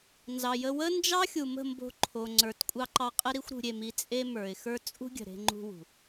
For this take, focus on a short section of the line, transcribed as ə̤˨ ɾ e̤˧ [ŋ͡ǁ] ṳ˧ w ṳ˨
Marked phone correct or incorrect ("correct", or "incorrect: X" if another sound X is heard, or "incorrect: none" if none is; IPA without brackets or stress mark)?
incorrect: ŋ͡ǃ